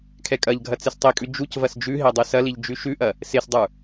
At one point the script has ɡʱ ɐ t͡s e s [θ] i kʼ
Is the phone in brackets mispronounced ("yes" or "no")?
yes